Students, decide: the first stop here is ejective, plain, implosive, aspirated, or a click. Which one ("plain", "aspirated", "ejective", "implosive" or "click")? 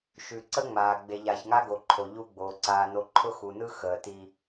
click